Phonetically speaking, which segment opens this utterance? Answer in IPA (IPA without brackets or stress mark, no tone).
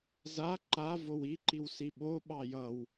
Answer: z